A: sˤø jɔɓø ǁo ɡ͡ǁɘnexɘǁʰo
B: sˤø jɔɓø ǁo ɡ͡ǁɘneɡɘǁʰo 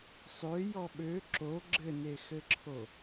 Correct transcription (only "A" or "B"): A